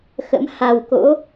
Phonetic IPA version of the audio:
x ə̰˧˥ m h a˨˩ w k o̰˧˥

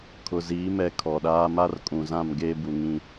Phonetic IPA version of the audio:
kʰ ʊ˨ z iː˨˦ m ɛ˨ kʰ ɔ˨ ɗ aː˦ m a˦ r kʼ ũ˨ z ã˦˨ m ɡ eː˦ b u˨ ŋ ĩ˦

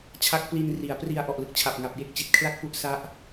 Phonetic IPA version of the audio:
t͡ɕʰ a˦˥ k̚ p l i˧ n r i˩˦ a̯ p r i˧ a̯ ʔ ɔ˨˩ ʔ l ɯ˦˥ k̚ t͡ɕʰ a˨˩ p̚ ŋ a˨˩ p̚ j e˥˩ k̚ t͡ɕ i˨˩ t̚ kʰ l a˥˩ k̚ p u˦˥ ʔ s a˦˥ ʔ

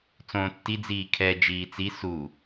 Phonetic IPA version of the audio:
t͡s õː tː i d͡z iː kʰ ɛ d͡ʒ iː t͡s i s u

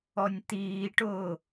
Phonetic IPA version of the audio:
ɔ nʲ t̪ iː ʈ ʊː

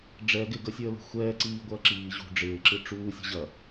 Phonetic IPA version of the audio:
ɖ͡ʐ ɛ ɡ ɪ ɡ ə sʲ əː l ə̤ xʷ ɛː ǀ iː ɡʷ ɐː ǁ iː ʑ ṳ ɖ͡ʐ ɪː ǁ ɨ ʈ͡ʂ uː sʲ ə̤ ʑ ɐ

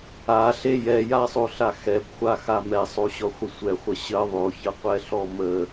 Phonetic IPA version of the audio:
a ɬ e j ɛ j a sˤ o ɬ a x ɛ b χʷ a x a m ɛ sˤ o ɕ ɔ χʷ ɪ sʷ ɛ χʷ ə ɕ ə ðˤ o ç ə qʷ ɛ ɬ ɔ m ə

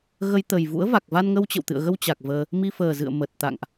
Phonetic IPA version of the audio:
ɣ ə˧ j t̪ ə˨˩ j v ṵ˧˥ ə̯ v a˨˩ k̚ v a˧ n ŋ ə˧ w t͡ɕ ə̰˧˨ w t̪ ɨ̰˧˨ ə̯ ɣ ə˧ w t͡ɕ a˨˩ k̚ v əː˧ | m i˧ f əː˨˩ z ɨ̰˧˨ ə̯ m ə˨˩ t̚ t̪ a̰˧˨ ŋ ʔ

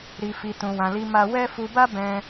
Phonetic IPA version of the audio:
ɾ i˧ f i˧ t ũ˧ w ã˧ l i˦ m a˦ w ɛ˦ f u˧ b a˦ b ɛ̃˧

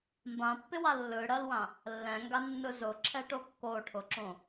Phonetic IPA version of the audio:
m b ã pː ɪ w a lː ɯ ɽ ɜ l w ã | lː ɛ̃ ŋ ɡ a nː ɯ z ʊ ǁʰ ɛ ʈ o kː o ʈʰ ʊ ǁ õ

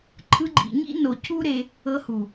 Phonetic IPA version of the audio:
ǃʰ ɯ˧ ɡ͡ǃ ḭ˨ ɲ ḭ˦ n o˨ cʰ u˦ ɾ e˧ | ɤ˧ h u˨

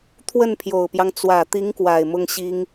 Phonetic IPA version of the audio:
t̪ʰ w ə˥˩ n pʰ j o˨˩ ʊ̯ p j ɑ˦ ŋ t͡s w ä˨˩ t̪ i˧˥ ŋ k w a˨˩ ɪ̯ m ʊ˥ ŋ ɕ i˥ ŋ

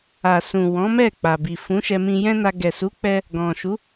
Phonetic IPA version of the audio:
a˨ s ũ˨ w ɔ̃˨˦ m ɛ˦˨ k͡p a˨ b i˨ f ũ˨˦ ʃ ɛ˧ m ĩ˧ j ɛ̃˦ n a˧ ɡ ɛ˨ s u˨˦ k͡p ɛ˧ | ɡ ɔ̃˨ ʃ u˨˦

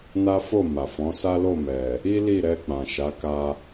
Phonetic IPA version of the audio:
n a˦ f o˦˨ m a˨ f ɔ̃˨˦ s a˦ l o˦˨ m ɛ˨ | i˦ l i˦˨ ɾ ɛ˧ k͡p ã˨ ʃ a˨˦ k a˧

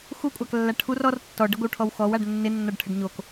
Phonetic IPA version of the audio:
x u kʷʼ a k lː a ʈʰ u r ɔ r tː ɔ ɖ ə ɡʷ ɪ w ʈʰ ɔ w x ɔ w a ɖ nː ɪ nː ɔ ɖ ʈʰ ə ɖ ɲ o k

